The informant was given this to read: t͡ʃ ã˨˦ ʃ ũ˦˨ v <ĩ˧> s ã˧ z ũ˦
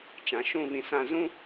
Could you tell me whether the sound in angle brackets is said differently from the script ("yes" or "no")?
no